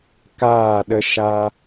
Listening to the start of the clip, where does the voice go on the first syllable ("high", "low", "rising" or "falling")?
falling